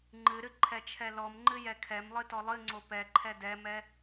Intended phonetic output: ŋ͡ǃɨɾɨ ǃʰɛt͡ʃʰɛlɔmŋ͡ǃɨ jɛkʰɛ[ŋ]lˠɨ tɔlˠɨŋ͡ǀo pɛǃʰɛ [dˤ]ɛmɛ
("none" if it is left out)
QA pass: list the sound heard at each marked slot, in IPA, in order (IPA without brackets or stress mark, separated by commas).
m, d